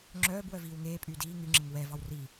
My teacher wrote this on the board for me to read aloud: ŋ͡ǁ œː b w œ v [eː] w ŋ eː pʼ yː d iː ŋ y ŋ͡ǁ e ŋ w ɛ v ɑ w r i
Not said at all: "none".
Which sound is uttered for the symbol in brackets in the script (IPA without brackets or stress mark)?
iː